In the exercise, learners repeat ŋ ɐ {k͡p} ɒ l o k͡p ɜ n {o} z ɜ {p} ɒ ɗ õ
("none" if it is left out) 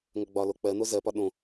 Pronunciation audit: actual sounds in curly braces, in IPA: ɡ͡b, o, p

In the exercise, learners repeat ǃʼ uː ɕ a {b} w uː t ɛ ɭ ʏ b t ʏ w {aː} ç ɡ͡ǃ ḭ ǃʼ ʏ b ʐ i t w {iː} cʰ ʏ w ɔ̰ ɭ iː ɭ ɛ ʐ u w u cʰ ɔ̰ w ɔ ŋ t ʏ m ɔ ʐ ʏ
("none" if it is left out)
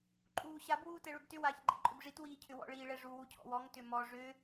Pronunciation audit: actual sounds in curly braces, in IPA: b, aː, iː

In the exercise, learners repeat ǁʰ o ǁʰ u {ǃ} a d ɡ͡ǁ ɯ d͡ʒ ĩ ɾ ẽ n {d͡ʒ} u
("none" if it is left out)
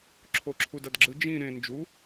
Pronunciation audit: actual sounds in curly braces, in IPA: d, d͡ʒ

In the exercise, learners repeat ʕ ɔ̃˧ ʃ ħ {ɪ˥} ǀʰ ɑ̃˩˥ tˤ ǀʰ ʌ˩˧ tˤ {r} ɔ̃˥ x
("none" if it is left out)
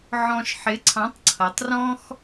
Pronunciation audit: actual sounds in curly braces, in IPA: ɪ˩˥, r

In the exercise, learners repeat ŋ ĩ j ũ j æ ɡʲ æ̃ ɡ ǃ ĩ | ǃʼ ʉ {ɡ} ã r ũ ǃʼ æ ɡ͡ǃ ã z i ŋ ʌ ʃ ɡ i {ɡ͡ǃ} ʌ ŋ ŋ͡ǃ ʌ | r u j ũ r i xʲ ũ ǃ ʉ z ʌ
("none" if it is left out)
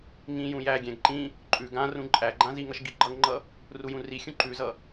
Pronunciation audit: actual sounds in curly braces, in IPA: ɡ, ɡ͡ǃ

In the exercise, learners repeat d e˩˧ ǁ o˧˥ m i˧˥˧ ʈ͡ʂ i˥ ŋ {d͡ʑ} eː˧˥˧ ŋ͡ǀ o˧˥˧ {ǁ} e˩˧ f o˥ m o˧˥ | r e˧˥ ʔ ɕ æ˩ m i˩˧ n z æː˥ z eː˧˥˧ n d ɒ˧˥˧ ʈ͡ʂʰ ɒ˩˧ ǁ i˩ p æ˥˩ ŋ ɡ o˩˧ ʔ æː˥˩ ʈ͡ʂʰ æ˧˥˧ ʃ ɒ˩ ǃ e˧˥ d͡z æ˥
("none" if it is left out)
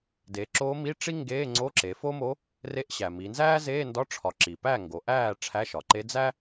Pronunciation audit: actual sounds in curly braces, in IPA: ɡ, ǁ

